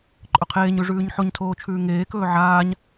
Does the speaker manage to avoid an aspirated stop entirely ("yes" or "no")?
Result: no